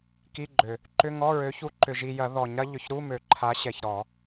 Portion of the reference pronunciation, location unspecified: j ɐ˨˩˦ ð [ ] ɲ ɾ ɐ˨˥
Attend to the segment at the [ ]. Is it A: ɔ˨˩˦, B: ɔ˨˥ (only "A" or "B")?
A